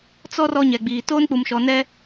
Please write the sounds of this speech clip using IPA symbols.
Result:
t͡s ɔ˦ r ɔ˦ ɲ ɛ˨ ɡ͡b iː˨ t oː˦ n k͡p u˨ m ʃ ɔ˨ n ɛ˦

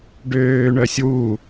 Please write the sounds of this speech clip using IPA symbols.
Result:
ɖ øː ɳ œ sʲ w u

